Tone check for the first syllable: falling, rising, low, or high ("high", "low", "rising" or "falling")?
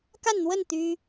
falling